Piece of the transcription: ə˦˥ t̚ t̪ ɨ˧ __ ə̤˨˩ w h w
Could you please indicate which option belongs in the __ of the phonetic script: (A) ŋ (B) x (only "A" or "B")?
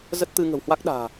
A